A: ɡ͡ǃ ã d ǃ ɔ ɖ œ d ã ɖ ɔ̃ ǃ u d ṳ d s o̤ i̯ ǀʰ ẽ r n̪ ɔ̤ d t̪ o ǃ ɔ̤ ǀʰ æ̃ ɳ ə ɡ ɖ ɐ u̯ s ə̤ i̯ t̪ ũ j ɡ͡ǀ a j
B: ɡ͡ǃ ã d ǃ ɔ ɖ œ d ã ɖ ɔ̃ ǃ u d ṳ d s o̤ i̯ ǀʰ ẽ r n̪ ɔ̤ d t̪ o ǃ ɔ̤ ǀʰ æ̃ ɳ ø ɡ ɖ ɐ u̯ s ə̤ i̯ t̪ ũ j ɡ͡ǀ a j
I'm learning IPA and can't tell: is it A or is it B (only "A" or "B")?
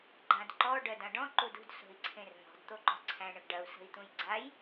A